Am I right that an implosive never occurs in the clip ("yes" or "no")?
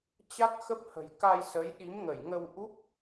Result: no